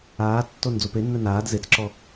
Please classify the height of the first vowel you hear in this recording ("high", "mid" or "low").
low